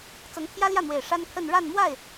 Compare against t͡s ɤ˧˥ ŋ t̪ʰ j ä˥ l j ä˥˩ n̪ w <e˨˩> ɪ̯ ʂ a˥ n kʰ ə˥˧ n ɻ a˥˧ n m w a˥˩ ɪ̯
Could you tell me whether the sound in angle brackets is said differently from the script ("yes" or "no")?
no